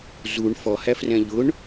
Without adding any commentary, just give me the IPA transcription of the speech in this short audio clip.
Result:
z u ɳ f ɔ h æ f r ɛ̃ ʎ ʊ ɳ

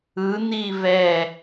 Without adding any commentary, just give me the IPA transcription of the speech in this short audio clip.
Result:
ɯ n̪ i v ɛ

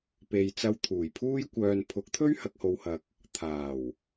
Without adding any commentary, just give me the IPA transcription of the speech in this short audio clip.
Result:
p e˨ j t͡s ɐ˧ w t̪ʰ uː˨˩ j pʰ uː˥ j kʷ œː˧ n pʰ ʊ˨˥ k̚ t̪ʰ ɵ˥ ɥ h ɐ˨ k̚ h o˨ w h ɐ˨ k̚ | t̪ʰ aː˨˩ w

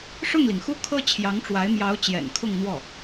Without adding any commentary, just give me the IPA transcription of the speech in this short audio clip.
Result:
ʂ ʊ˥˩ ŋ l i˩ ŋ x u˥˩ kʰ ɤ˥ t͡ɕʰ j ɑ˧˥ ŋ ʈ͡ʂ w a˧˥ ɪ̯ m j ɑ˧˥ ʊ̯ t͡ɕ j ɛ̰˨˩ n kʰ ʊ˥˧ ŋ n̪ w ɔ˥˩

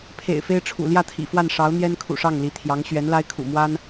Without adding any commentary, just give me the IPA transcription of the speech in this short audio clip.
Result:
pʰ ḛ˨˩ ɪ̯ f e˥ ɪ̯ ʈ͡ʂʰ ṵ˨˩ l j ä˥˩ t̪ʰ ḭ˨˩ f w a˥˩ n ʂ ɑ˧˥ ʊ̯ n̪ j ɛ˥ n kʰ ṵ˨˩ ʂ ɑ˥˩ ŋ l i˧˥ t̪ʰ j ɑ˧˥ ŋ ɕ ɥ ɛ˧˥ n l a˥ ɪ̯ kʰ ṵ˨˩ m w a˥ n

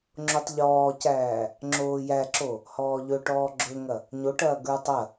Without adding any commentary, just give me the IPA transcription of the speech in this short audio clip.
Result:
ŋ͡ǁ o tˤ ʎ ɔː c æː | ŋ͡ǁ oː j æ ǁ o | h ɔː ʎ ɵ ʈ ɔː ɡ͡ǁ ɵ ŋ ɐ | ɲ o ʈ ɐː ɡ ə˞ tˤ ɐ

